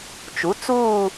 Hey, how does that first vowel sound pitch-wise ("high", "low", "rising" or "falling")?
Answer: rising